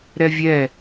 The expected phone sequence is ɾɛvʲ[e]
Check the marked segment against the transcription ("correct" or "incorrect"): incorrect